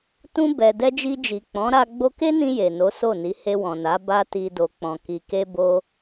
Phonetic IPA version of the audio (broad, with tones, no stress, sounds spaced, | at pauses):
t ũ˧ b ɛ˨ d ɛ˧ d͡ʒ i˧ d͡ʒ i˨ k͡p ɔ̃˨˦ ɾ a˧ ɡ͡b o˧ k e˦ n ĩ˧ j e˨ n o˨˦ s o˦˨ n i˨˦ h e˧ w ɔ̃˨ n a˨˦ b a˦ t i˧ d o˧ k͡p ɔ̃˧ k i˧ k e˦ b o˦